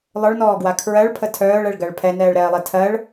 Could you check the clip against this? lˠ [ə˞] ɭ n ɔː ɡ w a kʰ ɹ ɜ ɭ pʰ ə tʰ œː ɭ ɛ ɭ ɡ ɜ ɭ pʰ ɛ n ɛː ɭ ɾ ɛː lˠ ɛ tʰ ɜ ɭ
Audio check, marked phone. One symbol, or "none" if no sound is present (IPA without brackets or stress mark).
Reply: ə˞